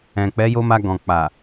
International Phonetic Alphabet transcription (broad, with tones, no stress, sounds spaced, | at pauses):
ɛ̃˨ k͡p ɛ˨˦ j o˦ m a˧ ɡ ɔ̃˨ k͡p a˨